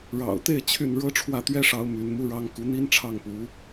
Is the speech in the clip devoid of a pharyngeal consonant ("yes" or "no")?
yes